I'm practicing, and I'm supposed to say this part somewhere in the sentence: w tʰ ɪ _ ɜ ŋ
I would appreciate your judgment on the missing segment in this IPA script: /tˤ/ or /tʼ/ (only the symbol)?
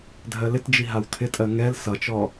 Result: tʼ